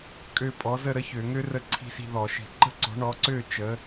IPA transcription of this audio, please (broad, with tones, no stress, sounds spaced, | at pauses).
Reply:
kʼ ø˥˨ pʼ ɔ˩˥ z ə˥˨ ɾ ə˥ ç ø˧˩˧ ŋ ø˥ r ə˥˨ ǀʰ i̤˥˨ s i̤˥˨ ð ɔ˧˩˧ ʃ i̤˧˩˧ ǃ ə̤˥˨ ǀ ɔ̤˩˥ ɳ ɔ˩˥ ǀ ø˥˨ t͡ʃ ə˩˥